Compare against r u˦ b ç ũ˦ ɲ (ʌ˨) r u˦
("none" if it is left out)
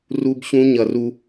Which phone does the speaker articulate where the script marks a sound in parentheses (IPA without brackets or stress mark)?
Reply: ʌ˨